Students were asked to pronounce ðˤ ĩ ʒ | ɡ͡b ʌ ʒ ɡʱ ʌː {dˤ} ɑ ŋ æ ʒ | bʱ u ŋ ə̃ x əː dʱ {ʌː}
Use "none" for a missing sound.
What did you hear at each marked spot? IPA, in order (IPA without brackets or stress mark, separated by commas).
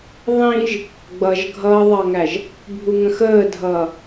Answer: ðˤ, ʌː